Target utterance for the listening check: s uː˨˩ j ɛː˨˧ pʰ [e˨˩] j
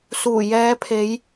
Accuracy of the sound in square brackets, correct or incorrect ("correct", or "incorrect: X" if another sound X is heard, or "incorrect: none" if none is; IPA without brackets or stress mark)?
incorrect: e˨˧